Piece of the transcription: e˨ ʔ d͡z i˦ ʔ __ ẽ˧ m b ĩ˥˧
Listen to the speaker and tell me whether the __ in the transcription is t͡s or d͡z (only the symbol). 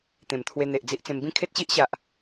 t͡s